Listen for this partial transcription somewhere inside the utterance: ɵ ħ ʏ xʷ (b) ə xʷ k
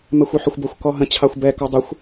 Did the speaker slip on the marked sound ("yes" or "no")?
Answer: no